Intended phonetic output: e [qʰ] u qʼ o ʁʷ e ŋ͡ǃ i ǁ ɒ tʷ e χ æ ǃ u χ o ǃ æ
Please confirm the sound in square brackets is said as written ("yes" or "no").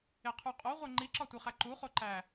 yes